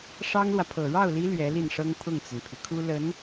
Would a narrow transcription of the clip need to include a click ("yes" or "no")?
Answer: no